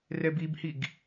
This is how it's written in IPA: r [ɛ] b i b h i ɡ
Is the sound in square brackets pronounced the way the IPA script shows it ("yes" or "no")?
yes